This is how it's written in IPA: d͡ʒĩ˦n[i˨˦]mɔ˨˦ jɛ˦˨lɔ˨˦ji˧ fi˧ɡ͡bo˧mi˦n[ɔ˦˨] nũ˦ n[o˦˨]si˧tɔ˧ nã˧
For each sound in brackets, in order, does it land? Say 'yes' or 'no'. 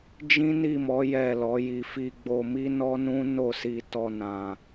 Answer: no, no, yes

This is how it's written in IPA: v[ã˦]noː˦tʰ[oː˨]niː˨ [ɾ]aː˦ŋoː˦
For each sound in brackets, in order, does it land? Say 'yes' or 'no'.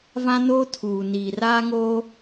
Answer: yes, no, no

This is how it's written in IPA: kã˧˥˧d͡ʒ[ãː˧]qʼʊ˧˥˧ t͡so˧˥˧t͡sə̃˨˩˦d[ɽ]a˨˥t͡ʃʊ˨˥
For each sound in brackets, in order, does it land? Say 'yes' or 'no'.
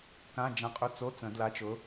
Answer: no, no

